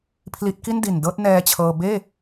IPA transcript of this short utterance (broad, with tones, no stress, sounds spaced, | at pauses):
pʰ l i˦˥ t̚ k i˥˩ n d i˨˩ n d ɤː˥˩ t̚ n ɛː˧ t͡ɕʰ ɤː˧ b eː˥˩